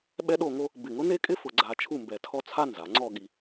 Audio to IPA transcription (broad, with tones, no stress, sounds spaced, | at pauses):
ɓ ɛ˥ ɗ o˥˧ ŋ o˥ | b ɪ˧˩ ŋ ʊ˥ n e˥ kʼ ɪ˥ f ʊ˧ ɡ͡ǀ a˧ t͡ʃʰ u˥˧ m b ɛ˧ tʰ ɔ˥ t͡sʰ a˥ n z a˩˧ ŋ͡ǀ ɔ˥˧ ɠ i˧